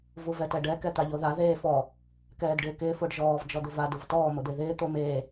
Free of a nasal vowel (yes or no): yes